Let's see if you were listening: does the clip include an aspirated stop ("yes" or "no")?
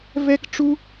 no